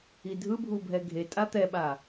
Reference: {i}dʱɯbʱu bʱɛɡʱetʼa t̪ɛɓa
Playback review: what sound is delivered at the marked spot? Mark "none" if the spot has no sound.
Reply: i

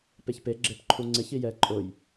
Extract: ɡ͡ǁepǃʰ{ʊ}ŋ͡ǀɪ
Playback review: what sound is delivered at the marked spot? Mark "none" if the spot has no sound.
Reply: u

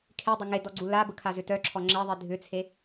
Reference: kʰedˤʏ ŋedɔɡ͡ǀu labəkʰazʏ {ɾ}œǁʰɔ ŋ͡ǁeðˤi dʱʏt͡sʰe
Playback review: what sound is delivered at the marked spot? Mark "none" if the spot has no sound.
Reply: t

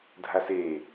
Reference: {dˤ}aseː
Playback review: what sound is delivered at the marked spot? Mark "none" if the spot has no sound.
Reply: dʱ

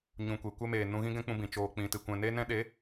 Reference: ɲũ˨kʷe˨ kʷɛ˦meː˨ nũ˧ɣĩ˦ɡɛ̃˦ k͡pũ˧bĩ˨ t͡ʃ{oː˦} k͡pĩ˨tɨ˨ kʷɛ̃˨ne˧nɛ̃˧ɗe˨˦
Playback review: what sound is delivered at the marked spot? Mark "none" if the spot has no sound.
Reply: oː˨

